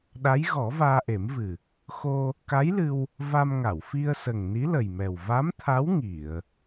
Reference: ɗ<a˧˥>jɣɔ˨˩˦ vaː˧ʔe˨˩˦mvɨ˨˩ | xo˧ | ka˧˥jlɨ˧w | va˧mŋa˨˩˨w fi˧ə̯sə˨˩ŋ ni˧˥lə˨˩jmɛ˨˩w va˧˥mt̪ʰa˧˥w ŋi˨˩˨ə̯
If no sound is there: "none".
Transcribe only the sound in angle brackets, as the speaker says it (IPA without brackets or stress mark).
a˧˥